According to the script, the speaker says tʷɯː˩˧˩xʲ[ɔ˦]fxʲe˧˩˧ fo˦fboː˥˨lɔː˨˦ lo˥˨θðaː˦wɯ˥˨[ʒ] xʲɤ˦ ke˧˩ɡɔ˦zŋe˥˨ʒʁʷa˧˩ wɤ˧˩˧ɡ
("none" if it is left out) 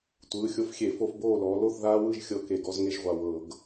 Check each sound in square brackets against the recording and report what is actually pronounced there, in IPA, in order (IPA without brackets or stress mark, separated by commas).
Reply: o˦, ʒ